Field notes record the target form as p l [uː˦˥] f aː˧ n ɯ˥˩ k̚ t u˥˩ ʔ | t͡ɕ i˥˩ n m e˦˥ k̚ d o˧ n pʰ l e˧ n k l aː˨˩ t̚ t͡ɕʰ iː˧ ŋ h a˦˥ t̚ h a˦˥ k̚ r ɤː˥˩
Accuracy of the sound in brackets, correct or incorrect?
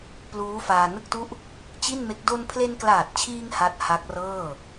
correct